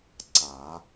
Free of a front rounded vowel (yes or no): yes